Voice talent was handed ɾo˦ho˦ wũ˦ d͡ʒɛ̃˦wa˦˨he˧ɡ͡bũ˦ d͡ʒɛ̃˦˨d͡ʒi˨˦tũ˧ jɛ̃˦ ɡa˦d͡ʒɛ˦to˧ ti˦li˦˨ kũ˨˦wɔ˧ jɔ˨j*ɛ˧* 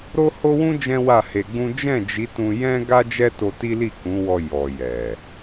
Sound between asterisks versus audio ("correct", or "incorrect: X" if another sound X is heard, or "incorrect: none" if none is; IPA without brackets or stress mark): incorrect: ɛ˨